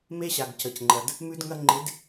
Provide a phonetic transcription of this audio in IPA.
me˦ɕa˨ɡ cə˨cŋ͡ǃɐ˨d | mʉ˦d ŋɐ˦ ŋ͡ǃɪ˨˦d

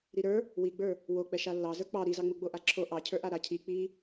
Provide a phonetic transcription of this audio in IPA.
ɾiɾə˞ | wiɡ͡bə˞ | wok͡pɛ ʃalːɑzə˞ k͡pɑ ɾizɑŋ͡mu ɡ͡boʔaǁʰo ʔɑcʰə˞ʔa ɾacʰi k͡pi

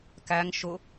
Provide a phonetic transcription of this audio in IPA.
kæŋ ʃʊ

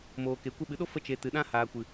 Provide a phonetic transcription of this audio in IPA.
moː˨ke˨ kʷə˧ɓɨ˨ɗo˦ fə˦t͡ʃe˨ tɨ˨ɗã˦ haː˨kʷɨ˨

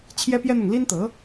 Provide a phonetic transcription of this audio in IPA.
t͡ɕʰjɛ˥pjɛ˥n̪ʊ˨ŋ li˥nt̪ɤ˧˥

